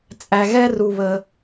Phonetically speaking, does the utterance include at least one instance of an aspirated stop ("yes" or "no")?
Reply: no